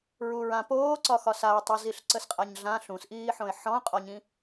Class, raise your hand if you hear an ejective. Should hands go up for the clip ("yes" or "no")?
yes